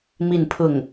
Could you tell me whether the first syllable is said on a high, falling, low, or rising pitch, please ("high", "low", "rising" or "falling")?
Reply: falling